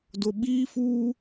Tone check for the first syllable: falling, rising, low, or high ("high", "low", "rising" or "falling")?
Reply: low